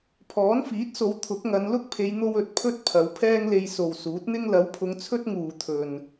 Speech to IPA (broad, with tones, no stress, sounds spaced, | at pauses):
pʰ ɔː˨˥ n f iː˨˥ t̚ s o˨˧ w t̪ʰ ʊ˨˥ k̚ ŋ ɐ˨˧ n l ʊ˥ k̚ pʰ e˨˧ j n̪ o˧ w ɵ˨ t̚ pʰ ɵ˥ t̚ pʰ ɐ˨˧ w pʰ ɛː˥ ŋ l e˧ j s o˨ w s uː˨˥ t̚ n̪ ɪ˥ ŋ l ɐ˨˥ w pʰ ʊ˨˧ ŋ t͡sʰ ɵ˥ t̚ ŋ uː˨ t̪ʰ ɵ˨ n